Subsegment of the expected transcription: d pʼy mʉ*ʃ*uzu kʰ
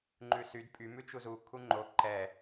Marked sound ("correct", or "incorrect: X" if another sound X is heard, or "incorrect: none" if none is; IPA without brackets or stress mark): incorrect: t͡ʃ